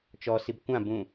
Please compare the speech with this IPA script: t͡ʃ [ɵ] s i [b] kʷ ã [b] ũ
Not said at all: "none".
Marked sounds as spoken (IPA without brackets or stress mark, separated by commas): ɔ, b, b